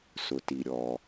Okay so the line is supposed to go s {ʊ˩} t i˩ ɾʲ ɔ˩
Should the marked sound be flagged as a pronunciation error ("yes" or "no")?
no